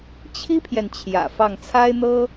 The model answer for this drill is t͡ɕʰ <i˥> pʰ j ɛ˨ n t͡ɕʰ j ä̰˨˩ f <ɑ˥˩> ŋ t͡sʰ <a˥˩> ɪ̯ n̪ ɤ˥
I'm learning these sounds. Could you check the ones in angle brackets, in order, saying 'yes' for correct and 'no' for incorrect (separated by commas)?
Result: yes, yes, no